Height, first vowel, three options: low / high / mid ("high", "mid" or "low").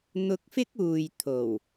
high